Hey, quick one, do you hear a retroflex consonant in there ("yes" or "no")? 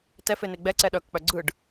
yes